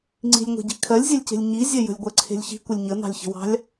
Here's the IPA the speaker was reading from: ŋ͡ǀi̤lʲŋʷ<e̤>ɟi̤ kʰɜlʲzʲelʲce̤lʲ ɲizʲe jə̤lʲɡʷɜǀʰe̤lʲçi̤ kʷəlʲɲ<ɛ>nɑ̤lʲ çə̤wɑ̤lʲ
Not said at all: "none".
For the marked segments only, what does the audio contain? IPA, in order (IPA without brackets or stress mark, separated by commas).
e̤, ə